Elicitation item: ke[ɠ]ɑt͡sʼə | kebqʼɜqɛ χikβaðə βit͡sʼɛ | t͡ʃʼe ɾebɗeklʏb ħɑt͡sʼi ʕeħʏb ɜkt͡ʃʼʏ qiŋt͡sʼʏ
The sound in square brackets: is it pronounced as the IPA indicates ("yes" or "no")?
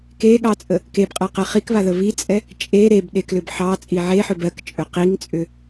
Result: yes